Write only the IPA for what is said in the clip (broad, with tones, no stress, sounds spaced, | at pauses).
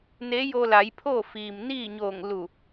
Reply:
n e˧˥ j o˧ l a˩˧ j pʰ oː˥˨ f iː˩ m n iː˥˨ ɲ oː˧˩ ŋ l u˧˩